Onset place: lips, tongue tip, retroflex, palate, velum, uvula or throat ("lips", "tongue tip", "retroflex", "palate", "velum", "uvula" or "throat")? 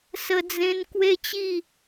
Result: tongue tip